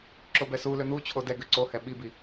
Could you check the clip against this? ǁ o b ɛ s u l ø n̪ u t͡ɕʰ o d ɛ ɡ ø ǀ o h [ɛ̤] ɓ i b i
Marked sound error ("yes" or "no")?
yes